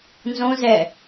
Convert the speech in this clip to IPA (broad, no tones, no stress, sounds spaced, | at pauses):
n z õ z ɛ